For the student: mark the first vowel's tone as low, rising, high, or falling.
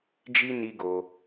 high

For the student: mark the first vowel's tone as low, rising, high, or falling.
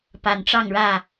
low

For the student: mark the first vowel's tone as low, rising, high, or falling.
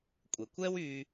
low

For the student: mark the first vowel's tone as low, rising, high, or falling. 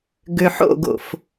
low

